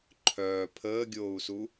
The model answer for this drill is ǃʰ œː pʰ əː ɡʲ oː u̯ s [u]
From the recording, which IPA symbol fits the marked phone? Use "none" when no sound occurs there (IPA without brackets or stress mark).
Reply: u